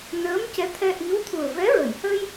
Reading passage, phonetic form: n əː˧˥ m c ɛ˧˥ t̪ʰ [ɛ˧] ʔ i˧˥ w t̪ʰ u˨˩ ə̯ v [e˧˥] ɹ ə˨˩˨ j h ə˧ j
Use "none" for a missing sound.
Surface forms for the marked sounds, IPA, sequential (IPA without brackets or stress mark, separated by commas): ɛ˧, ɛ˧˥